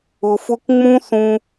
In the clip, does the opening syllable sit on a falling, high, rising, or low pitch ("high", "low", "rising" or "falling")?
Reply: low